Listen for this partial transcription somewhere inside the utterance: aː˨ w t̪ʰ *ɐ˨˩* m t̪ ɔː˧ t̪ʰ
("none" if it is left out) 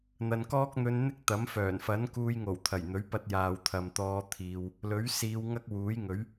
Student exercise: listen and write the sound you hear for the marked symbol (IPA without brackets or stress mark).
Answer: ɐ˨